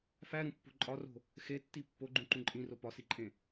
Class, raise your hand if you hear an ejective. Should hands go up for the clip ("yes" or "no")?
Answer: yes